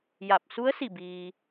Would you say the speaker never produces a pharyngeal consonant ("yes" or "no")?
yes